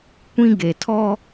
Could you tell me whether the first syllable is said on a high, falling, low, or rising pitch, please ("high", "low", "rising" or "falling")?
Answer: high